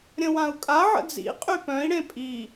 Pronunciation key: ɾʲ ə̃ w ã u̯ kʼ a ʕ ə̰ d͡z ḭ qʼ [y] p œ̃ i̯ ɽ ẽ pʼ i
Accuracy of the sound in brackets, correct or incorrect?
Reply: correct